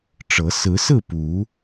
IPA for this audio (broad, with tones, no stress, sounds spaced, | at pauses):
ʈ͡ʂ ɤ˨˦ s ɹ̩˨˦ s ɹ̩˥˨ p u˨˦